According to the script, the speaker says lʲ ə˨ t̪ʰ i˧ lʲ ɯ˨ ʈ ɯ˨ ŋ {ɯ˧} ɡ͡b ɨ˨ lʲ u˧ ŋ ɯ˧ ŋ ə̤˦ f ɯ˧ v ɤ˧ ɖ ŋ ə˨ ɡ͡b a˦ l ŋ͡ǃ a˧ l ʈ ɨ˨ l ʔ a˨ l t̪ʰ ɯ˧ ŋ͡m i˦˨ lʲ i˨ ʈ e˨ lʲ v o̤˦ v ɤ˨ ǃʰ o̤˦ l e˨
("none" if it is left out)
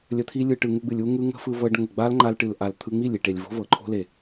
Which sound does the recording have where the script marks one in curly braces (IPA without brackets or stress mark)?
u˧